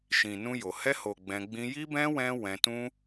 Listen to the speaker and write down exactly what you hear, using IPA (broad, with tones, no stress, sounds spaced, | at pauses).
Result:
ʃ ĩ˨ n ũ˧ j o˨ h ɛ˧ h o˨ ɡ͡b ɛ̃˧ ɡ͡b ĩ˧ j i˦ b ɛ̃˦ w ɛ̃˦ w ɛ̃˧ t ũ˦